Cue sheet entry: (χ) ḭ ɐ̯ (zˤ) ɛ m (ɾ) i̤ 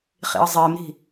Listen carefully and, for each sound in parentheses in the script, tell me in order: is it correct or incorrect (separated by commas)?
correct, correct, correct